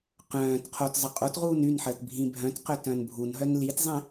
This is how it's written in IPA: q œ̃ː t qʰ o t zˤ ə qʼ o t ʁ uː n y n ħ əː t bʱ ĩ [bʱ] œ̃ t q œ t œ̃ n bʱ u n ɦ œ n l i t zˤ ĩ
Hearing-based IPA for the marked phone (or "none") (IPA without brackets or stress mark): bʱ